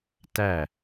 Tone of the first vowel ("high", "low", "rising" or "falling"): falling